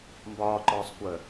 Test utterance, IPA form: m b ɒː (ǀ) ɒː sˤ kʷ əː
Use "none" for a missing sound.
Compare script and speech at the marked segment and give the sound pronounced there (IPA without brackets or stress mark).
ǃ